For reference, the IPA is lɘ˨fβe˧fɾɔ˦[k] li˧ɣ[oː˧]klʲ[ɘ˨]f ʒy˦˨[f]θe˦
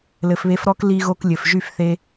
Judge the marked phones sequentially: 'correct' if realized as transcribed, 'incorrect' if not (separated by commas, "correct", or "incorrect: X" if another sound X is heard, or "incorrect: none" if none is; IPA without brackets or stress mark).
correct, incorrect: o˧, correct, correct